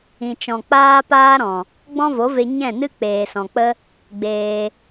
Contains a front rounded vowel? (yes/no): no